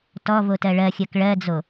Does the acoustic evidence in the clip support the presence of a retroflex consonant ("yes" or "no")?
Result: yes